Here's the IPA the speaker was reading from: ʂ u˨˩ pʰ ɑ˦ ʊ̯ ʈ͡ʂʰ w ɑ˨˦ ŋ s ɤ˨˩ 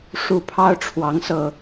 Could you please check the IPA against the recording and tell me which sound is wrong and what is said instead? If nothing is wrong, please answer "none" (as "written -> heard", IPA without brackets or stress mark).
none